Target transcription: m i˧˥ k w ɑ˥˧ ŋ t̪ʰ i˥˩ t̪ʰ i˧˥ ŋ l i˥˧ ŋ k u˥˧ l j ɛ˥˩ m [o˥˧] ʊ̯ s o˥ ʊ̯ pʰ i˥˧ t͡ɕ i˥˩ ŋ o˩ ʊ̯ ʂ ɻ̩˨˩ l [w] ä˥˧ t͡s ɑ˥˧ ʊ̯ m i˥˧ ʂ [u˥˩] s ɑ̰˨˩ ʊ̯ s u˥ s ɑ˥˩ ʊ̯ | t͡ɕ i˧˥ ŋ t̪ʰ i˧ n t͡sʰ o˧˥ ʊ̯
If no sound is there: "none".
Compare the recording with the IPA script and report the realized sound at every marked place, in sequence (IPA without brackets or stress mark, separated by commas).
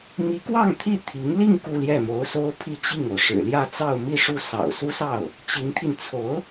o˧˥, j, u˥˩